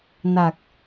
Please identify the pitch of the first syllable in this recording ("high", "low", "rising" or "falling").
low